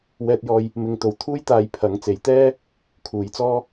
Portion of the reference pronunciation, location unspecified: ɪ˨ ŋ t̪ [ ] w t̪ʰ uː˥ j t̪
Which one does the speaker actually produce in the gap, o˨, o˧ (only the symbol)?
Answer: o˨